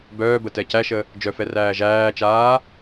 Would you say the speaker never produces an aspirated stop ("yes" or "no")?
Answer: yes